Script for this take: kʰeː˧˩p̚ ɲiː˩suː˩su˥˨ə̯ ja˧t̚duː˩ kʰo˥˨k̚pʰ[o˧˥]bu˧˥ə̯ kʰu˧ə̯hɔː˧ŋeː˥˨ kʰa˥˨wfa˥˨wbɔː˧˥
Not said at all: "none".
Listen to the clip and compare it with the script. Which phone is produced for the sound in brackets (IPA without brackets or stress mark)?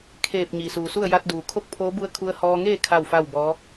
oː˧˥